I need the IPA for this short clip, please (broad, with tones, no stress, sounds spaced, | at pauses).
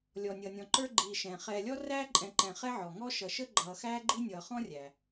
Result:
lʲ ɔ˩ nʲ ʌː˩ nʲ ɔ̃˩ ǃ ə˞˦ ɡ͡ǃ iː˨ ʃ ɛ̃ː˩ χ ɛː˨ lʲ ɔ˥ r æː˥ ǃʼ ɛ̃˨ ǃ ɛ̃˨ χ ɛ˥ ʕ ɔ˩ ŋ ɔ˦ ʃ ʌ˨ ʃ ə˥ ɡ͡ǃ ʌː˨ x æː˥ ɡ͡ǃ i˥ nʲ ʌː˨ χ ɔ̃˥ rʲ æ˩